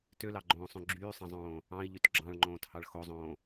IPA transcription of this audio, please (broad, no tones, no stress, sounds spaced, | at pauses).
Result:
t ø l ɑ ɡ͡ǃ õː sˤ õ ɡ͡ǁ yː sˤ ɑ̃ zˤ õː | ɑ̃ i̯ ʎ y t ɡ͡ǁ ɑ̃ ɭ ŋ͡ǃ õː t h ɑ ɭ x o zˤ õː